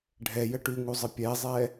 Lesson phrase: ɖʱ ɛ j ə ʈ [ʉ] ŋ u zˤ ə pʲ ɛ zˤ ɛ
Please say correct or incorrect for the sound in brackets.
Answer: correct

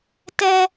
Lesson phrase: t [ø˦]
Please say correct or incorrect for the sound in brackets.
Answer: incorrect: ɛ˦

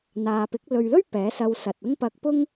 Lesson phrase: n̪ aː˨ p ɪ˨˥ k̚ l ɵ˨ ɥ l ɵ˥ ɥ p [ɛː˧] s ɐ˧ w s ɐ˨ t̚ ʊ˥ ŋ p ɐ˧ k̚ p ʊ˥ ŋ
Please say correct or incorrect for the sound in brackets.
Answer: incorrect: ɛː˨˥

